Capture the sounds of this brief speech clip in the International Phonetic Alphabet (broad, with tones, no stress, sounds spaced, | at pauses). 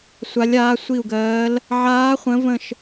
sʷ a˧˥ lʲ aː˧˥ sʷ i˦˨ u̯ ɡ ɜː˧˥ l | ʕ aː˧˥ χʷ ə̃˧˥ v ə̃˦˨ ʃ